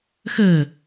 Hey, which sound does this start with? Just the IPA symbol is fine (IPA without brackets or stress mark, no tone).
x